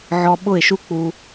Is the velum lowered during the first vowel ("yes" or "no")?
no